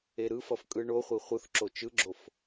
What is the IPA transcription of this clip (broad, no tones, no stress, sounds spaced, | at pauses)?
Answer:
e ɾ ɯ f ʌ f kʼ ɯ ɳ o χʷ i χʷ ɯ θ ǁ o t͡ʃ ɯ ɡ͡ǁ o f